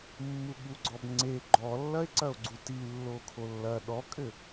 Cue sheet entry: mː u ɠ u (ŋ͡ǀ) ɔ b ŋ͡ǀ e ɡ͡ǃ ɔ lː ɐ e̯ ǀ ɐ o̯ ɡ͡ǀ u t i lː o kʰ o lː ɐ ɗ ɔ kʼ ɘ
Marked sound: incorrect: ɡ͡ǀ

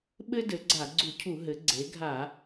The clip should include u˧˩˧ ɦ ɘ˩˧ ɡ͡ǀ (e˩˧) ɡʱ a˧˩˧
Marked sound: correct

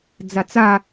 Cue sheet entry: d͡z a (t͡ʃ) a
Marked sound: incorrect: t͡s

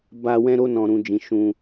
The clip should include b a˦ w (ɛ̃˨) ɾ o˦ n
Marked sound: incorrect: ɛ̃˦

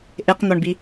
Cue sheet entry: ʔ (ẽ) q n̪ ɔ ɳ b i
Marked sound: incorrect: e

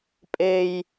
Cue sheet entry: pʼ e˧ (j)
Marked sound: correct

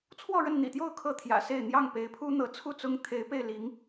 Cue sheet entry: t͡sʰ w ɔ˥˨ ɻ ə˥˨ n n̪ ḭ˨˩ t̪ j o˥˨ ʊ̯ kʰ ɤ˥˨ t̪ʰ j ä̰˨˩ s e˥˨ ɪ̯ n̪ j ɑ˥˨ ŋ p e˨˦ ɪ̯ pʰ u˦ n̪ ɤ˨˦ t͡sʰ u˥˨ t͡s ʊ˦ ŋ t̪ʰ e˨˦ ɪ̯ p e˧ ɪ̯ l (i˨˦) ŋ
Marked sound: correct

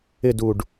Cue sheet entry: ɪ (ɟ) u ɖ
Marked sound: incorrect: d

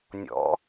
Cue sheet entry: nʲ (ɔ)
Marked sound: incorrect: ɔ̰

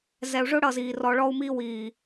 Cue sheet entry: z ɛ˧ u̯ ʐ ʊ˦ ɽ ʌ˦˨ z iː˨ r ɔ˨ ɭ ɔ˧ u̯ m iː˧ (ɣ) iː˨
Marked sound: incorrect: w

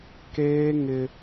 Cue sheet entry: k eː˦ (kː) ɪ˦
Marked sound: incorrect: ŋ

